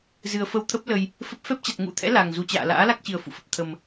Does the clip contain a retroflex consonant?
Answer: no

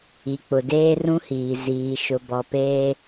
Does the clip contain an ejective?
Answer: no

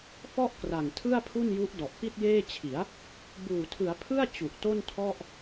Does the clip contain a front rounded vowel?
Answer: no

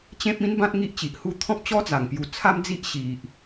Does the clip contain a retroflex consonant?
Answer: no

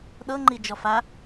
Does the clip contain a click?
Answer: yes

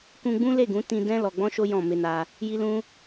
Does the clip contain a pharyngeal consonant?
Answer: no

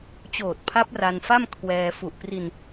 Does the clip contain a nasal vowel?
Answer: no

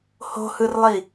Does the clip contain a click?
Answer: no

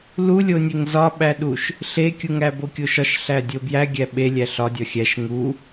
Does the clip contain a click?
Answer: no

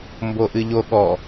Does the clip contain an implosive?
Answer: yes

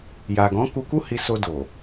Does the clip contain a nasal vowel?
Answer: yes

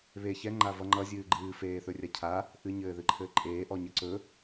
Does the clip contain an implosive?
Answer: no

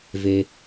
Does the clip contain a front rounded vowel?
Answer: no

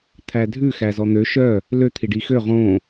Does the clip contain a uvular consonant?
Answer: yes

